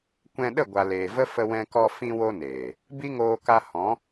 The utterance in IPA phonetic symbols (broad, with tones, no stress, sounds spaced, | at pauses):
kʷ ɛ̃˧ ɗ ə˦˨ ɡʷ a˨ l eː˨ v ə˦ f ə˧ w ɛ̃˧ k ɔ˧ f ĩ˧ w o˧ n eː˨ | b i˦ ŋ oː˧ k a˧ h ɔ̃˨˦